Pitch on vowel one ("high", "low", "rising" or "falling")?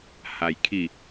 low